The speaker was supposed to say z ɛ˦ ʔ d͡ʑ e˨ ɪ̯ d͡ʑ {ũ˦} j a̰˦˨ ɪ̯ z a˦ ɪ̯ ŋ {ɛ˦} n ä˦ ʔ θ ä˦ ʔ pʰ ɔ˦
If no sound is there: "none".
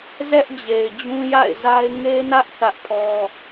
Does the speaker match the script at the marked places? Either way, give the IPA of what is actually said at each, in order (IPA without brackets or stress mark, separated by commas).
ũ˦, e˦